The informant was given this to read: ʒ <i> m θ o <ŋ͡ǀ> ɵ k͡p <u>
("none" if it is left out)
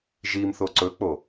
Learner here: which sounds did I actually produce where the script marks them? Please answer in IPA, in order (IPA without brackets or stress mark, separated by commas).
i, ǀ, o